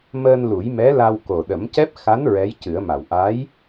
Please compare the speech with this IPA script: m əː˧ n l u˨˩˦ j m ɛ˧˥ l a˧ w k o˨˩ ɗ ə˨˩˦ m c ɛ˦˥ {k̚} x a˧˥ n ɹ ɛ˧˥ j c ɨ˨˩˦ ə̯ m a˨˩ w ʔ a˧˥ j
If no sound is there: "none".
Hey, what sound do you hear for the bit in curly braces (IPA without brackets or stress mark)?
p̚